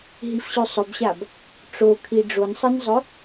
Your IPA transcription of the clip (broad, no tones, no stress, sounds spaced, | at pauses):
ɦ i f ɕ ʉ sˤ ɵ b ɕ a b | ʈ͡ʂ o kʰ i ɖ͡ʐ o n sˤ ɨ n zˤ ɵ